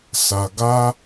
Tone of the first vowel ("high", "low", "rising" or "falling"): low